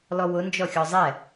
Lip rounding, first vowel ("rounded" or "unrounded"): rounded